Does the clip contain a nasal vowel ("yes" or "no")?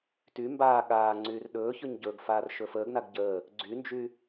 no